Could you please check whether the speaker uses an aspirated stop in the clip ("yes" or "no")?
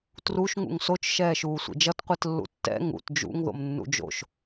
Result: no